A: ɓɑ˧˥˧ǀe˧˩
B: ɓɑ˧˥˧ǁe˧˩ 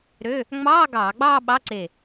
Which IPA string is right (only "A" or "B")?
A